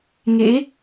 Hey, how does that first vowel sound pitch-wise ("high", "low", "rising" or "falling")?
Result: rising